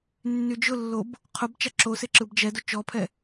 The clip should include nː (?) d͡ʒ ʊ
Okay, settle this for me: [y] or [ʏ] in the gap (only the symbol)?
y